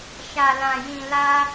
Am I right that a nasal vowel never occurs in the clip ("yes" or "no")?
no